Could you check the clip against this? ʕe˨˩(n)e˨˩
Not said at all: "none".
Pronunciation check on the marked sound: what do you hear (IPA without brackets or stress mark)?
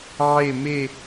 m